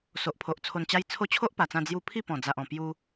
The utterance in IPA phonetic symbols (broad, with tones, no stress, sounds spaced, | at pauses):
s o˨ ʔ pʰ o˨ ʔ t͡sʰ o˧ n t͡ɕ a˦ j t͡sʰ o˥˧ t͡ɕʰ o˦ ʔ p a˨˩ t͡s ã˧ d͡z j u˧ pʰ i˥˧ p ɔ̃˨˩ d͡z a˨ ʔ ɔ̃˨˩ p j u˧